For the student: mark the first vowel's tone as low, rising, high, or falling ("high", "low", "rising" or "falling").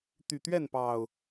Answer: low